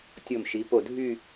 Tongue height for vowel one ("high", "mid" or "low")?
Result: mid